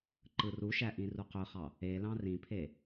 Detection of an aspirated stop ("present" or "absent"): present